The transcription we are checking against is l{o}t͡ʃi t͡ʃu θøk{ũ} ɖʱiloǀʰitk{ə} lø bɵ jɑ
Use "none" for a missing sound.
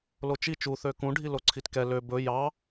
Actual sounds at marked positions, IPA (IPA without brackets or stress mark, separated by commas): o, ũ, ɛ